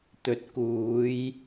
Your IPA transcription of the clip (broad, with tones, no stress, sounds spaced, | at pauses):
t̪ ɵ˨ t̚ k uː˨˧ j